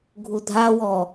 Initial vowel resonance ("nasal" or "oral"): oral